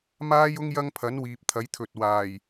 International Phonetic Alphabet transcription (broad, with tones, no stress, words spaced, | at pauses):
maː˥jʊ˥ŋ jɐ˥ŋpʰɐ˨˥n wiː˨p̚t̪ʰɐ˨˥jt̪ʰɵ˨t̚waː˨˩j